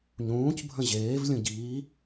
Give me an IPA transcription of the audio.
ɲ ũː c bʱ ə̃ ʑ eː v lʲ ũ ɟ iː

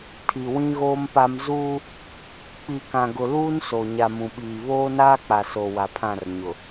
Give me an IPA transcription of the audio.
tʰ i˨ w ĩ˦ ɣ oː˦ m p a˦ m z uː˦ | k͡p i˨ k ã˨ ɡ ʊ˨ l uː˦ n s o˨ ɲ a˨ m ũ˨ ɓ iː˨ β oː˦ n aː˦ k͡p a˨ s o˨ w a˨ pʰ ã˦˨ r ɲ ʊ˨

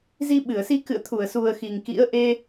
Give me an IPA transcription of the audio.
z i˧ ɓ ɨ˧˩ ə̯ s i˧ k ɨ̰˧˨ ə̯ t̪ʰ u˧˩ ə̯ s u˨˩ ə̯ x i˨˩ ŋ k ḭ˧˥ ə̯ ʔ e˧

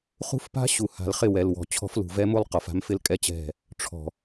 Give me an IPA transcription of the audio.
χ ṳ˦ f p a̤˦ ɕ u˨ h a̤˨ l χ ɪ˦˨ w ɛ˨ l w ɔ̤˨ t͡ɕʰ ɔ̤˦ f l ṳ˨ v ɛ˦ m u˦ lˠ q ɔ˨ f a̤˦ m f ɪ˦ l kʼ ɛ˦ t͡ɕ ɛ̤˦˨ | ʈ͡ʂʰ ɔ̤˨

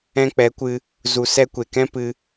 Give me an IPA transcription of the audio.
ɛ̃˧ k͡p ɛ˨˦ kʷ ɨ˧ | z u˨ s ɛ˧ kʷ e˨ k ɛ̃˦ p ɨ˧

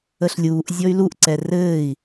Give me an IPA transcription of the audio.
ə ɬ lʲ uː ʔ zʲ ɔ y̯ l u ʔ ǀ ɛ r ɘː i̯

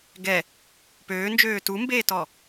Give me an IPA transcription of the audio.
ɡ ɛ | p øː n d͡ʒ øː t u m b eː t ɔ

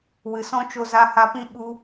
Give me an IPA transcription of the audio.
w ɨ˨ s ɔ̃˦ t͡ʃ o˧ z a˧ h a˧ p ĩ˦ ɓ u˧

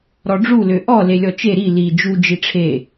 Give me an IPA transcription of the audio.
ɾ ɔ ɖ͡ʐ u l ø ʔ ɔ l e lʲ ɔ t͡ʃ e ɾ i l i d͡ʒ u d͡ʒ i ʈ͡ʂʰ e

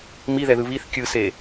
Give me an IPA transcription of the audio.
m i ð ɛ ð ɯ β i θ kʲ ɯ s e

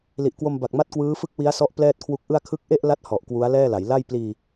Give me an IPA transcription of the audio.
l i˨˩ ʔ k w o˧ m b a˨˩ k̚ m a˥˩ t̚ k w ɯː˦˥ f ɯ˥˩ k̚ w i˦˥ a̯ s ɔ˦˥ ʔ p l ɛː˥˩ t̚ kʰ w u˦˥ k̚ ʔ ɯ˥˩ a̯ kʰ ɯ˦˥ k̚ ʔ e˥˩ ʔ l a˥˩ t̚ h ɔ˨˩ ʔ k w u˦˥ a̯ l ɛː˥˩ l a˩˦ j l a˥˩ j p l iː˧

